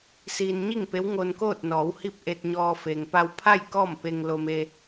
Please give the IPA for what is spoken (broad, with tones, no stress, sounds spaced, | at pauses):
s iː˧ n ɲ i˥˨ ŋ p e˧˥ w ŋ o˧ n k oː˥˨ t̚ n ɔː˩˧ w h i˥˨ p̚ ʔ e˧ t̚ ɲ ɔː˧ f e˩ ŋ p a˧ w pʰ a˥˨ j k ɔː˥˨ m p e˧ ŋ l o˧ m e˧